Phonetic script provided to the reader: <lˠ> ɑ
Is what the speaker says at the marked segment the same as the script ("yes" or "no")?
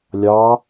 no